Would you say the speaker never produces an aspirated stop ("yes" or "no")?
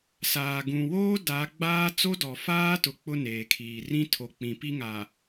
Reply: no